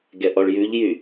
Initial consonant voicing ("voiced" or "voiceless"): voiced